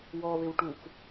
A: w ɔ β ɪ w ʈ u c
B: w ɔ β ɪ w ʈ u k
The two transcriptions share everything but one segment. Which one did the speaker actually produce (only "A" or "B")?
B